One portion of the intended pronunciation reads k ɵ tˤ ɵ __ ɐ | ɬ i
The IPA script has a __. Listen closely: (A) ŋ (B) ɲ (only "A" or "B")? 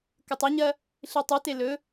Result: B